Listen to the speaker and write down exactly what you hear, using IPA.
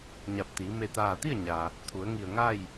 ɲ a˧˩ p̚ t̪ iː˩˧ m e˧˩ t̪ aː˧˩ t̪ i˥˨ ə̯ ɲ a˩ | t̪ʰ u˩˧ ə̯ ŋ i˧˩ ə̯ ŋ a˥˨ j

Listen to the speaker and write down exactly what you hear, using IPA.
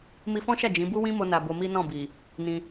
m i˧ f ɔ̃˦ ʃ a˦˨ d͡ʒ ĩ˨˦ b u˦ w ĩ˦ m o˦ n a˧ b o˧ m i˦ n ɔ̃˦˨ b i˨ | n ĩ˧

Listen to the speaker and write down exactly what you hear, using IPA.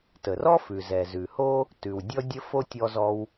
t ə˩ r ɔ˥ f ʉ˩ z ɛ˩ z ʉ˩ h o˥ | t ʉ˩ w dʲ ɔ˥ dʲ ə˥ f o˥ tʲ ɔ˥ z ɔ˥ w

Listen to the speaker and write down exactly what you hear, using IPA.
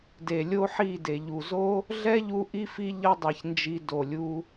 d e˨ lʲ o˦ ħ i˦˨ d e˨ ʎ u˨ z o˦ | ɮ ɛ˦ ʎ u˧ ʔ i˦ f i˦ ʎ ʌ˦ dˤ i˨ ç n d͡ʒ i˧ d o˨ lʲ u˧

